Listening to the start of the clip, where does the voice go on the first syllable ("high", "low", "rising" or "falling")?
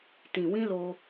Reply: low